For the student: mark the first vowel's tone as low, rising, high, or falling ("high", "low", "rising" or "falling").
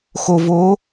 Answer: low